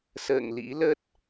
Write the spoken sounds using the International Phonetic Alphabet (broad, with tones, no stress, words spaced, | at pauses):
sə̰ː˧˨ŋlḭ˧˥lə˦˥t̚